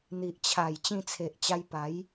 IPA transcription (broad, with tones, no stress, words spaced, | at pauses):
n̪i˨ʔt͡ɕʰa˨˩j t͡ɕĩ˧t͡sʰe˨ʔt͡ɕa˧jpa˨˦j